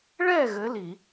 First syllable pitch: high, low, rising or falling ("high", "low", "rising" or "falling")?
falling